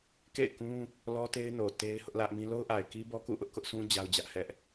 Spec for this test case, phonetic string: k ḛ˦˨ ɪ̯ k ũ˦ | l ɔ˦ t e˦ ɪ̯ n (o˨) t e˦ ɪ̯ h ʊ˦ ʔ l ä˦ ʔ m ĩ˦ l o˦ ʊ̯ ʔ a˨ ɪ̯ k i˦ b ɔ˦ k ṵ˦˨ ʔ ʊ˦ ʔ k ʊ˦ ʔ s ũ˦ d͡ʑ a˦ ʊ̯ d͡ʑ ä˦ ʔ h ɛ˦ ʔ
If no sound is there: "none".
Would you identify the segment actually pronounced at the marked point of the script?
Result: o˨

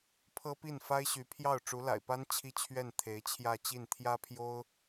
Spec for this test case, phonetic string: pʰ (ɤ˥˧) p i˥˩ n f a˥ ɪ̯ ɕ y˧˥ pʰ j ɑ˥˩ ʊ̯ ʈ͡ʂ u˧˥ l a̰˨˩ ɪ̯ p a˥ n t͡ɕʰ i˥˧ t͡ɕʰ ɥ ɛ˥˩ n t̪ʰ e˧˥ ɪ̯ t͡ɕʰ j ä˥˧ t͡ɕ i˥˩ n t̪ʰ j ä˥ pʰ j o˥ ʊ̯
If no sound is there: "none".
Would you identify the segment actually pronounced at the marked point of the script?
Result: ɤ˥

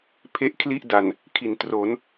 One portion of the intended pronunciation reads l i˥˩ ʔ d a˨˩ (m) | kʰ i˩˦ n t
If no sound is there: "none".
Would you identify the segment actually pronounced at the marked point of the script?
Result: n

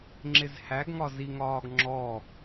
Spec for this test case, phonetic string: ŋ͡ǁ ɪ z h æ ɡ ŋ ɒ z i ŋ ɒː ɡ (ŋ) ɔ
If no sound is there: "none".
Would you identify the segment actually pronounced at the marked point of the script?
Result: ŋ͡ǁ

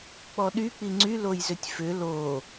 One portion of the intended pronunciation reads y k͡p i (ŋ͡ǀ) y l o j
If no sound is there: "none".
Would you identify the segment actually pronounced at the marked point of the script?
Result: ŋ͡ǀ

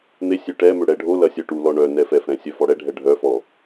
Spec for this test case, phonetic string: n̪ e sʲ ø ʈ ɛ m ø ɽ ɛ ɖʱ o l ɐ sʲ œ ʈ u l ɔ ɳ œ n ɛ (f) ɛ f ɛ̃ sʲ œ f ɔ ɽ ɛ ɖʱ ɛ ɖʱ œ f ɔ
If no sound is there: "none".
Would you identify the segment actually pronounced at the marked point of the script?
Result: f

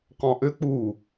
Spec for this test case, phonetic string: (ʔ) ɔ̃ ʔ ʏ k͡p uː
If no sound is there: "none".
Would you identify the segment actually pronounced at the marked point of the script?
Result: q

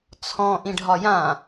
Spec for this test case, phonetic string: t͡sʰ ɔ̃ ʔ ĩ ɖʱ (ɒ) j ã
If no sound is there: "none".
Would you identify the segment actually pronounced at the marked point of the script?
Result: ɒ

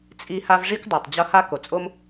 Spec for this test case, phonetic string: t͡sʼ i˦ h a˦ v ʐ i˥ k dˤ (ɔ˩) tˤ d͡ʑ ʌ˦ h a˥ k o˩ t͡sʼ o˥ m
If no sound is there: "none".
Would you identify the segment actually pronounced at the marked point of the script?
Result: o˩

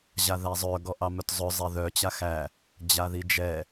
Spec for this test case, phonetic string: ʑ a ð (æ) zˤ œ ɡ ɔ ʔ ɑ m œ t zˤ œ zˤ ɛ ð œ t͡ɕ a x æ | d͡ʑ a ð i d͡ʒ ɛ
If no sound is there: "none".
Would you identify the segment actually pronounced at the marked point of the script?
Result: æ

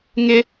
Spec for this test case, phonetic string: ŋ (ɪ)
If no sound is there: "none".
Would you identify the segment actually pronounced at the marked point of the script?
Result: ɪ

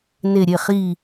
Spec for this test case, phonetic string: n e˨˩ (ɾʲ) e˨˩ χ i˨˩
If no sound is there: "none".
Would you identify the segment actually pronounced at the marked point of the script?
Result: ɾʲ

